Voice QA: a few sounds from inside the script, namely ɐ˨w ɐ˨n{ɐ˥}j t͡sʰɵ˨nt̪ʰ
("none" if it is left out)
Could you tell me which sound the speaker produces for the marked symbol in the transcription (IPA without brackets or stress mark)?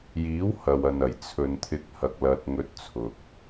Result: ɐ˨˩